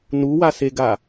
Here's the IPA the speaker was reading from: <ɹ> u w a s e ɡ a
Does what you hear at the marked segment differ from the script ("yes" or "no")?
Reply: yes